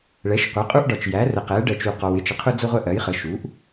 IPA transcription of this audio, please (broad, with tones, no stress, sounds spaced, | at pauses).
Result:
ɭ ɛ˩˥ ʃ qʷ ɛ˩˥ qʼ u˦ ʔ ɖ ɒ˨ t͡ʃ j æ˩˥ r ə˨ q ɛ˩˥ ɖ ɜ˨ t͡ʃ u˨ q ɔ˨ w ɪ˦ t͡ʃ ə˨ qʰ ʊ˦ d͡z ʊ˦ ʁʷ ɛ˦ ʔ ɜ˩˥ j χ ə˩˥ ʃ u˩˥ ʔ